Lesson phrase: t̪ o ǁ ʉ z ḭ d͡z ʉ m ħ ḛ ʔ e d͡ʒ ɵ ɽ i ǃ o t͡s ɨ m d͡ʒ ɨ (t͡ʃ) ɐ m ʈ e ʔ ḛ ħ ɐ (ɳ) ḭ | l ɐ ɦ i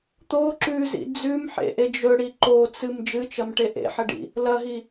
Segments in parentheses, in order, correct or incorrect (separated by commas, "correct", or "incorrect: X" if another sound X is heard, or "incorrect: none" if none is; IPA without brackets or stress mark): correct, incorrect: ɖ